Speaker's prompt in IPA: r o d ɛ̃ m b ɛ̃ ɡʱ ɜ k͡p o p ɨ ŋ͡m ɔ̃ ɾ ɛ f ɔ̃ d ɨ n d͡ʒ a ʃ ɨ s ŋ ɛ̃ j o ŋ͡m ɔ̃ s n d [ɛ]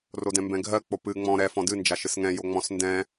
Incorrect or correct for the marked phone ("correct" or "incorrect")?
incorrect